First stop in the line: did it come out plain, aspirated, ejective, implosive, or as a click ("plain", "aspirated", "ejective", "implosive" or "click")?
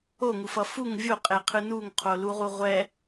ejective